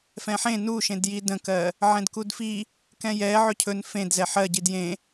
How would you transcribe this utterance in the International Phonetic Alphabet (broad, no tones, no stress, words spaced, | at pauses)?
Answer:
fɛ̃ħẽ nuʃẽdji də̃kɜ | ʕɛ̃dkudfi | kɛ̃jɛ ʕɵcʰɵn fẽdzɛ ħɜɟid jẽ